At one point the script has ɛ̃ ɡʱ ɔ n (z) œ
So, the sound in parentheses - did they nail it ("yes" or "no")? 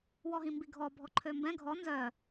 yes